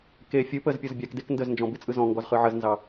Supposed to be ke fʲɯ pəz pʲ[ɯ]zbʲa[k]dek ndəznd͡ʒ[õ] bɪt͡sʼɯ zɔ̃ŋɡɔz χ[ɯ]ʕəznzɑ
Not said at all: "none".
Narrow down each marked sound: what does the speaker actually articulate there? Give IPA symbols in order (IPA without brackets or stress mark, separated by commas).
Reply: ɤ, k, ɔ̃, ɯ